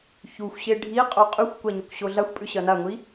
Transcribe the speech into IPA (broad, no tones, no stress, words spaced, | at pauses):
çuxʷɕe ɖʱi qʼoqʼʉxʷkʷa ɲokʷɕoɮaxʷpʼʉ ɕɐnaŋʷi